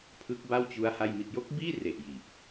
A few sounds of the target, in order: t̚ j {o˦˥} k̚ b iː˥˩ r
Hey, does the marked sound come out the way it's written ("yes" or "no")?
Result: yes